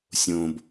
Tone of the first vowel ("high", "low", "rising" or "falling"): low